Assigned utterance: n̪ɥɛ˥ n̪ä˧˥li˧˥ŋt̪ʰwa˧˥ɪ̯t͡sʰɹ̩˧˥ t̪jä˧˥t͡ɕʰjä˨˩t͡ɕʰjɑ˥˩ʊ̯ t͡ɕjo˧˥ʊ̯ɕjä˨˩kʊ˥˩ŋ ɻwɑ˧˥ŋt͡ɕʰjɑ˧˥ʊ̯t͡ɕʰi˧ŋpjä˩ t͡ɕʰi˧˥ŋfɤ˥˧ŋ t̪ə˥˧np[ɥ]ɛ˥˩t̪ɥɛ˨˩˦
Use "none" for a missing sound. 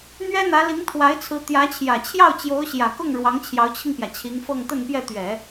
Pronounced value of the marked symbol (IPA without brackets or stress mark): j